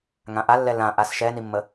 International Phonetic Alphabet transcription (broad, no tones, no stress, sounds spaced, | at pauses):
ŋ ã ʔ a lː ɛ l ã ʔ a s ʃ ɛ n i mː ə